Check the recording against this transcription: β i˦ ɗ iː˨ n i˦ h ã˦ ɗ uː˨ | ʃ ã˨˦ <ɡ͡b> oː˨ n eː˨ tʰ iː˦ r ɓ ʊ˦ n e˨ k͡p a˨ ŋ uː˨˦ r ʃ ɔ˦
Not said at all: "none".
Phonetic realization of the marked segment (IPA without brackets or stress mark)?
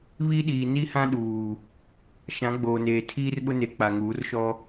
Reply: ɡ͡b